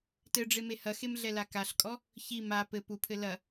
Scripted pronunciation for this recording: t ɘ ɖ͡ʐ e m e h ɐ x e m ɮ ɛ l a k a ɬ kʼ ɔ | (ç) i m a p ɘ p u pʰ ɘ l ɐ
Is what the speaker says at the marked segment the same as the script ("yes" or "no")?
yes